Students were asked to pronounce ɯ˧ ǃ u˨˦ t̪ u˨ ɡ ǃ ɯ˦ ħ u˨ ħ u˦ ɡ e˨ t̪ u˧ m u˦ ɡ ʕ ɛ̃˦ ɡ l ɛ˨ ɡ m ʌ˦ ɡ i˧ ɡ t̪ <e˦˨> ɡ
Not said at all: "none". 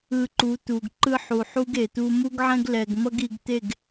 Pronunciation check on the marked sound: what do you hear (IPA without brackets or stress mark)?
e˦˨